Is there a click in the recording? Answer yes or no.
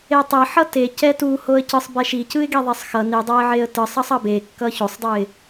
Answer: no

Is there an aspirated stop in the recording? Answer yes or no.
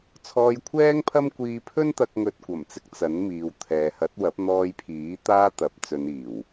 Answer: yes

